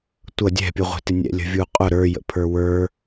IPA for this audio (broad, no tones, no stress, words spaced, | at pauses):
tʷʌ dʲɛ̤pʲuʁʷɛ̤tɪ nʲɛ̰lʲə̤vʲuqʼʊ ɾə˞jə̰ pʰə˞wə˞